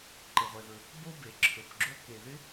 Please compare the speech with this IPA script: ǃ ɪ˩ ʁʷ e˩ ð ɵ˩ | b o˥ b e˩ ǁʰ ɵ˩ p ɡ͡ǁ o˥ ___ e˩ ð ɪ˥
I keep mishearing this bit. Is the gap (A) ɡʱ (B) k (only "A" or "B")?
B